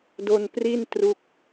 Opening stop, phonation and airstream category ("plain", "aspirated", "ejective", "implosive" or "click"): plain